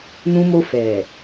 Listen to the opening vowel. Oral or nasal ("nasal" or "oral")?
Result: nasal